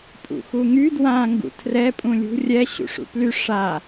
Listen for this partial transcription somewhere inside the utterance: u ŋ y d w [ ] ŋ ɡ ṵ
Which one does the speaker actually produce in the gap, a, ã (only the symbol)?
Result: ã